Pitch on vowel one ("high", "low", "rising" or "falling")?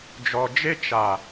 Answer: low